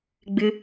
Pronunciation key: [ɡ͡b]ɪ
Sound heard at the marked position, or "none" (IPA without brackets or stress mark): ɡ͡b